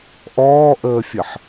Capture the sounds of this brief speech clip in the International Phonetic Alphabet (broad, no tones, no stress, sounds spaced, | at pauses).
ʔ ɔː ʔ əː fʲ ə ħ